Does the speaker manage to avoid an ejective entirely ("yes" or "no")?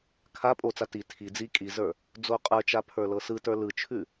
no